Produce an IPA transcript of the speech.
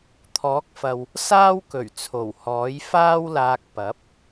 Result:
t̪ʰ ɔː˨˥ k̚ f ɐ˨ w | s aː˥ w k ɵ˨˩ ɥ t͡sʰ o˨˩ w h ɔː˨˥ j f aː˥ w l aː˧ k̚ p ɐ˨˥ p̚

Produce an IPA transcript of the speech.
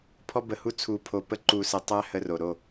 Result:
pʰ ɔ˦ b ə˧ h u˦ t͡sʰ u˧ pʰ o˧ p ə˦ ǃ u˧ s ə˧ tˤ æ˦ h ə˧ r o˨ ɾ o˦˨

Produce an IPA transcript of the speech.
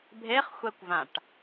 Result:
bʱ e χ xʷ ɛ kʷ v ã ʈ

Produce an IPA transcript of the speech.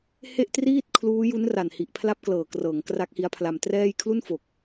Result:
h e˥˩ ʔ t r iː˥˩ t̚ kʰ l uː˦˥ j u˦˥ n r a˨˩ n h i˨˩ ʔ pʰ l a˦˥ p̚ k l ɤː˨˩ k r ɤː˩˦ ŋ k r a˦˥ k̚ h i˦˥ a̯ pʰ l a˧ m t r ɛː˥˩ j kʰ l u˥˩ n f o˨˩ k̚

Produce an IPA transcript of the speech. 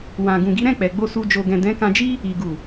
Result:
w ã˨ ɡ ũ˨ ɡ i˨˦ ɾ ɛ̃˦˨ k͡p ɛ˨ ɡ͡b o˧ s u˧ d͡ʒ o˨ ɡ ɛ̃˨ d ɛ̃˨˦ k ã˧ d͡ʒ i˦ | i˨ ɡ u˨

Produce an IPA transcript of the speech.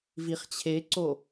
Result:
v i χ t͡ɕʰ e ǀ o

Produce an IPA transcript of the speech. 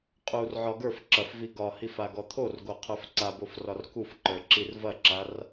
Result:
qʼ u r ʕ ɒ ɡ ə˞ f ǁ ɐ f v i ɡ ɒ h i f a ɡ ɔ t̪ʰ o r ɡ o qʰ ə˞ f ǀ a b o f r ɒ r k u f ǃ ə˞ ǁ i r v ɐ ǁ a r

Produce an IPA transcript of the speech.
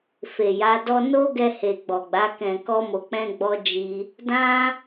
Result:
f e˨ j a˨˦ d ɔ˦ n o˦ ɡ ɛ˧ h e˨ ɡ͡b ɔ˨ ɡ͡b a˨˦ k ɛ̃˧ k ɔ˦ m o˧ k͡p ɛ̃˦ ɡ͡b ɔ˦ d͡ʒ i˦ | d ã˦

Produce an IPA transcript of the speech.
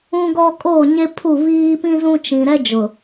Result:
ũ˦ ɡ ɔ˦ kʼ oː˦˨ ɲ e˦ pʰ u˦˨ β iː˦ p ĩ˦ z ũ˦ t͡ʃ ĩ˨ ɾ ɛ˦ d͡ʒ ʊ˨

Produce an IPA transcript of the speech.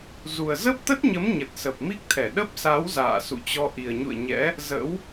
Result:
z u˨˩ ə̯ z ə˦˥ p̚ t̪ ə˦˥ t̚ ɲ ə˨˦ m ɲ ə˨˩ t̚ s ə˨˩ p̚ m i˦˥ k̚ t̪ʰ ɛ˧˩ ɗ ə˦˥ p̚ s a˨˦ w z a̰ː˧˨ s ṵ˧˨ t͡ɕ ɔ˧ ʔ i˨˩ ə̯ ɲ ṵ˧˨ ə̯ ɲ ɛ̰˧˥ | z ə̰˧˥ w

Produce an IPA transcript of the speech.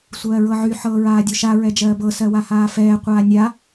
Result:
sʷ ɜː ɹ ɤ ʕ y ħ ɤː ɹ aː dʲ o ʃ a ɹ ɛ d͡ʒ ɜː b ɤ s ɜ w a h aː f ɛː qʷ aː nʲ a

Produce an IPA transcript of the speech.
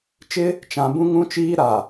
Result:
t͡ʃ ɪ˦ | t͡ʃ ã˨ b ũ˦ ŋ ũ˦ t͡ʃ iː˦ ɾ a˨

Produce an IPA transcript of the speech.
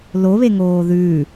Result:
l o β e ŋ oː ð ʉː

